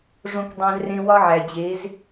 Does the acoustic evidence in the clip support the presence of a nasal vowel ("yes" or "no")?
yes